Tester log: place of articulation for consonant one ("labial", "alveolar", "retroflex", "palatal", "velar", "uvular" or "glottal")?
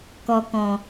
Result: velar